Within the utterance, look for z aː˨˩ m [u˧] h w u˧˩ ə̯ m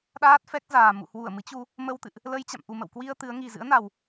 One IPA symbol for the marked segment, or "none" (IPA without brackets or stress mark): ṵ˧˨